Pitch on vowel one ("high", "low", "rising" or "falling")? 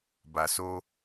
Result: low